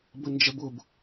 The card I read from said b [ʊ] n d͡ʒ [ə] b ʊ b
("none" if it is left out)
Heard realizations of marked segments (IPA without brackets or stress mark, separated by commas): ə, ə